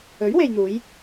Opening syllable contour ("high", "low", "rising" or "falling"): rising